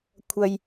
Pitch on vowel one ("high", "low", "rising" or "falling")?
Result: low